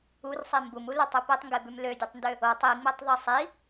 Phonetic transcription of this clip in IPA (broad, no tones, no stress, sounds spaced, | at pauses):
u r sˤ i m b u m u l ʏ tˤ ʉ p e tˤ ŋ ɡ e b ʉ m l ø dʲ u tˤ n d ø | o tˤ i ŋ͡m e tˤ ðˤ i sˤ i